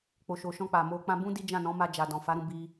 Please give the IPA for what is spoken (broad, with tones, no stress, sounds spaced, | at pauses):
k͡p o˨ ʃ o˨ ʃ ɔ̃˧ k͡p a˨ m o˧ k͡p ã˧ b ũ˦ d i˦ d͡ʒ ã˦˨ n ɔ̃˨˦ m a˧ d͡ʒ a˨ d ɔ̃˨ f a˨˦ ɾ ũ˧ b i˧